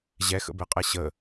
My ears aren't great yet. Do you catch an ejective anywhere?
yes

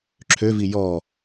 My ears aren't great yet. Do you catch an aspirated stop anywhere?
yes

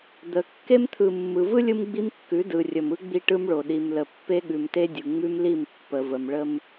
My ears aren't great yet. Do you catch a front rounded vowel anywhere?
no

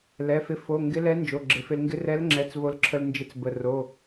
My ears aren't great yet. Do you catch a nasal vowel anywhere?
no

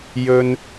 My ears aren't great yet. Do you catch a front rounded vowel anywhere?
no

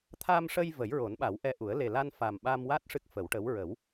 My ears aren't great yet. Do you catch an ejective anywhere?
no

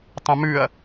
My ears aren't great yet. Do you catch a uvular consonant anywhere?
no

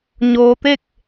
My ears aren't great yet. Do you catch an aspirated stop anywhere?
no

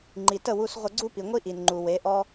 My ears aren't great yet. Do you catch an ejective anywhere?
no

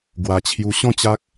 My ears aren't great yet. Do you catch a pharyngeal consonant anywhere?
no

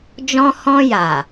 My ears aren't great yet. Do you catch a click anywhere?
no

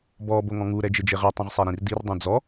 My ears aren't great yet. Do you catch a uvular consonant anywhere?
yes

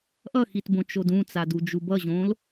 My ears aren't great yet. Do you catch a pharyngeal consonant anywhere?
no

